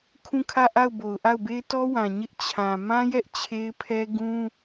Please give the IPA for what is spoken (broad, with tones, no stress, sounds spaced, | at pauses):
kʰ ũ˦˨ kʰ ä˦˨ ʔ a˦˨ ʊ̯ b o˨ ʊ̯ ʔ a˦˨ ʊ̯ b e˦ ɪ̯ t ɔ˦ w ã˨ ɲ ɪ˦ ʔ t͡ɕʰ ã˨ m ã˦ j ɛ˦ ʔ t͡ɕʰ e˦ ɪ̯ pʰ ɛ˦ ɡ ũ˦